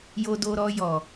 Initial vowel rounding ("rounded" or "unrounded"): rounded